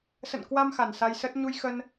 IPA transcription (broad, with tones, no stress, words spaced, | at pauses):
sə̰˧˨nkwa˧m xa˨˩nsa˧jsə˦˥t̚ ɲu˧j xə˧n